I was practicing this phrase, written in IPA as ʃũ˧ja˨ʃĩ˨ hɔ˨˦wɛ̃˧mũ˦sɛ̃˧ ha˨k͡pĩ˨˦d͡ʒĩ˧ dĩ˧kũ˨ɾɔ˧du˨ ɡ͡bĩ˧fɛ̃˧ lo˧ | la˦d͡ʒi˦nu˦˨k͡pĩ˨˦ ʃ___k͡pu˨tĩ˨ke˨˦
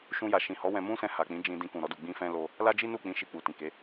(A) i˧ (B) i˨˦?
A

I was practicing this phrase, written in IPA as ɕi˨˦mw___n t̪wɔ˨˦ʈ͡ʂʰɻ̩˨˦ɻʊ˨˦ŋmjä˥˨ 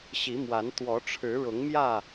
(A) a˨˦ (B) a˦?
A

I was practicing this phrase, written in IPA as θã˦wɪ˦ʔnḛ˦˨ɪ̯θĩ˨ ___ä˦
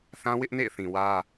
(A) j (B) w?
B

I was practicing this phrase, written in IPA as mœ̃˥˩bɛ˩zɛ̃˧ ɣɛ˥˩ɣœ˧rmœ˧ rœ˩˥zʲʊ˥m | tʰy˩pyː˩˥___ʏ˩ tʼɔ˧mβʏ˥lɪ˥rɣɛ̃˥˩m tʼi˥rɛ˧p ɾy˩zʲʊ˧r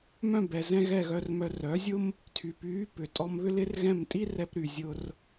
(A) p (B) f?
A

